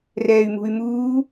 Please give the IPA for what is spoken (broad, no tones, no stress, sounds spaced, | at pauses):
r ɛː y̯ m ṳ y̯ m uː